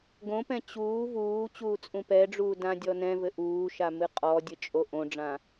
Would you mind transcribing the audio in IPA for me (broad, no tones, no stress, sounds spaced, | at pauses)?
ɡ õ p ɛ̃ t͡ɕ uː v uː t͡ɕ uː t͡sʼ ũ p ɛ ɖ͡ʐ uː d ã dʲ ɔ n ɛ̃ v ɘ ʔ uː ʃ a m ɨ qʼ ɔ dʲ ɘ t͡ʃʼ o ʔ õ ɖ͡ʐ ã